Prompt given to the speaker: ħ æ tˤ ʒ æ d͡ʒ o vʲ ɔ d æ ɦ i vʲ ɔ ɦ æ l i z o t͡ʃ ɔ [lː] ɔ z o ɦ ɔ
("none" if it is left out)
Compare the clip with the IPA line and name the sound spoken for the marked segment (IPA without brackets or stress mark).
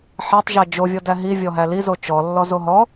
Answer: lː